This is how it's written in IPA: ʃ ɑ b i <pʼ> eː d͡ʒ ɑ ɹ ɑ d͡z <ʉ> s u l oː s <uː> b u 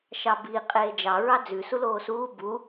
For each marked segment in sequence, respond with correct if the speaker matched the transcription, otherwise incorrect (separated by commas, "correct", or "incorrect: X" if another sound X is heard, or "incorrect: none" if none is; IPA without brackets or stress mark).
incorrect: qʼ, correct, correct